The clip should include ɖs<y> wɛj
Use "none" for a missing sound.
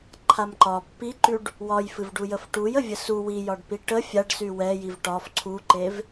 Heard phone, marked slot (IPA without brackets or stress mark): y